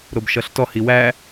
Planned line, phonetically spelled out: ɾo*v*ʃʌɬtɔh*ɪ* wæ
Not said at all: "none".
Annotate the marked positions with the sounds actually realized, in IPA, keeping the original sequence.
b, i

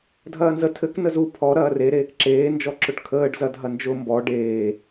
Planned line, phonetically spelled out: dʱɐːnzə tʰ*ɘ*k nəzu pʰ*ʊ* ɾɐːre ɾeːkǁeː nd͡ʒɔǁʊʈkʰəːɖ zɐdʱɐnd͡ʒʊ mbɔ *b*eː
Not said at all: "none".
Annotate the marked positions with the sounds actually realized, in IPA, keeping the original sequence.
ɘ, ɔ, ɖ

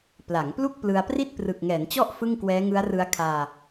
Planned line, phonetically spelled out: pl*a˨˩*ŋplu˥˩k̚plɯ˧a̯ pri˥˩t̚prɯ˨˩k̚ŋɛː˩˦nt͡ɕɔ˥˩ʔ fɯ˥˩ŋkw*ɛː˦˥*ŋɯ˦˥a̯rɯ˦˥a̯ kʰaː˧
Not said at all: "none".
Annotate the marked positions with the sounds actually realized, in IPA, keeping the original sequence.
a˩˦, ɛː˦˥

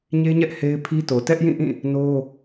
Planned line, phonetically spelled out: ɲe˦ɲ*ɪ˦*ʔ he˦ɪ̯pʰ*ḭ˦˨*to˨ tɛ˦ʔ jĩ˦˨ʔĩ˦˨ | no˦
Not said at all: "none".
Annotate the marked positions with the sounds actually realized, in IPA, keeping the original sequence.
ɛ˦, i˦

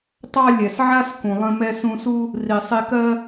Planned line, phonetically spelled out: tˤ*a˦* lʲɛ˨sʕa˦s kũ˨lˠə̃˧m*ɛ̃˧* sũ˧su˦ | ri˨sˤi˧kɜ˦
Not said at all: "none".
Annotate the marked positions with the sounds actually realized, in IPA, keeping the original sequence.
ɑ˦, ɛ˧

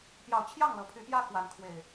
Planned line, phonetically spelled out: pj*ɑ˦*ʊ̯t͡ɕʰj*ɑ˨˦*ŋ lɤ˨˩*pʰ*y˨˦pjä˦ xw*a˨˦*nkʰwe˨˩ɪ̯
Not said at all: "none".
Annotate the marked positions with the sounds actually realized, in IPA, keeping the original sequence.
ɑ˨˦, ɑ˥˨, pʰ, a˨˦

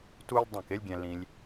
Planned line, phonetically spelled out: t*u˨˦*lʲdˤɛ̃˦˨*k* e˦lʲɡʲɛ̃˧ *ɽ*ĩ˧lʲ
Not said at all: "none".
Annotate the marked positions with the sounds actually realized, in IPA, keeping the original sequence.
u˦, k, l

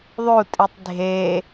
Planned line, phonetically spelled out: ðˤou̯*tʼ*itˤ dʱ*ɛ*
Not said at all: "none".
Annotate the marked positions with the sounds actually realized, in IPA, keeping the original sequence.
tʼ, e

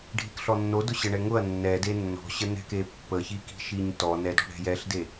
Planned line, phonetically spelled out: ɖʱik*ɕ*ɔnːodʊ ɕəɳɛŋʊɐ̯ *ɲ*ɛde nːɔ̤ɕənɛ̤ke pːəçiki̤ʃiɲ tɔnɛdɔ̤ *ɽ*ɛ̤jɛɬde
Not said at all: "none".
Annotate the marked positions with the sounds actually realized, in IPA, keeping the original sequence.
ɬ, nː, ɽ

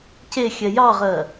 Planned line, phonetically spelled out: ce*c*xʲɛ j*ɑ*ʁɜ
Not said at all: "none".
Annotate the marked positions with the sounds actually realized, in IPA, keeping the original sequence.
none, ɑ

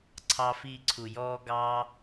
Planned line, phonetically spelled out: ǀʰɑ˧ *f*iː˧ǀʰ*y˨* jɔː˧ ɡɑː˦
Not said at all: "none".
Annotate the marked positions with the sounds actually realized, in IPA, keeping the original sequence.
f, u˨

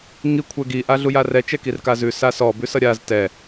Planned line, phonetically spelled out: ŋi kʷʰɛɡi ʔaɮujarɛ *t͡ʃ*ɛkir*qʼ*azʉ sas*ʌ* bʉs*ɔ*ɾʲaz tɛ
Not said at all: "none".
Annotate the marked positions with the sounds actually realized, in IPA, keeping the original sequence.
t͡ʃ, k, ɔ, ʌ

